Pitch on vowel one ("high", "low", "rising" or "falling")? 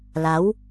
rising